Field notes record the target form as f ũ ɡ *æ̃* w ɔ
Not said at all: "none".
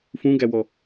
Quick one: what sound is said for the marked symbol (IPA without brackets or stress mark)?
æ